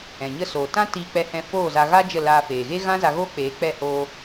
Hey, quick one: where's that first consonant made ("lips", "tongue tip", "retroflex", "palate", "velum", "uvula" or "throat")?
palate